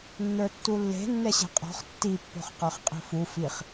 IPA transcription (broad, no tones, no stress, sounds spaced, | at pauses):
nː ə˞ tː u lː e̤ nː ɛ ɕ e̤ qʼ ɔ̤ χ tː i pː o̤ χ q ə˞ χ qʼ i̤ f u f i χ